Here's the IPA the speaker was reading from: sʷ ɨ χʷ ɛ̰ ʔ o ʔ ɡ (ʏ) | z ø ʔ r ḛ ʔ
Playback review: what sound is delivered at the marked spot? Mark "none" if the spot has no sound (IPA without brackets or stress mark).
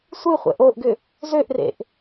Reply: ʏ